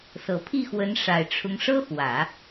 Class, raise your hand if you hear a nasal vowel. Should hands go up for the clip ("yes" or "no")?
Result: no